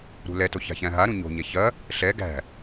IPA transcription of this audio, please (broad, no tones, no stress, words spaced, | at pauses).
ɾṳlɛto ça̤çæ̃ɦaɾũ ɲo̤ɲɛ çɐ | ɬɛ ɡæ̤